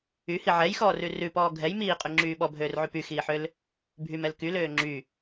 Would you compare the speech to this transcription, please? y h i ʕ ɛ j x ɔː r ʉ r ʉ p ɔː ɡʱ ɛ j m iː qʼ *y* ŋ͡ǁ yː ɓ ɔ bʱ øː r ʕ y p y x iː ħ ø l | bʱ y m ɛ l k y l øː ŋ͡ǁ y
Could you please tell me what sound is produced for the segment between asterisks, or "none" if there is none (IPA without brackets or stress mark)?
y